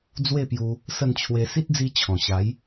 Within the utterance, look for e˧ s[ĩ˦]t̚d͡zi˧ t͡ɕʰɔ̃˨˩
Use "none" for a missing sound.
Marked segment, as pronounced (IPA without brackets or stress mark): i˦